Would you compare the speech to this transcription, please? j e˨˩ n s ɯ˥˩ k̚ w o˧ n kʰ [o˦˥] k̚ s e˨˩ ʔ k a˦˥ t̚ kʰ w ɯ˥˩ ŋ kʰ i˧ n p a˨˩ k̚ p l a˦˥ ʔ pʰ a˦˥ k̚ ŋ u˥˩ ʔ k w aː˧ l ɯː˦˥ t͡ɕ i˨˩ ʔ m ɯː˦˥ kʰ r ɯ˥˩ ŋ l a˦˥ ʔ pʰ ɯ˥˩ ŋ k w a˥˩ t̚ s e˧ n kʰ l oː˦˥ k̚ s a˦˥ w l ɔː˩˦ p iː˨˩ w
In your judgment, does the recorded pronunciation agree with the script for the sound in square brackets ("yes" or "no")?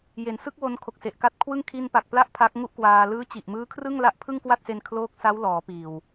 no